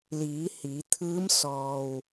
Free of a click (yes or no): yes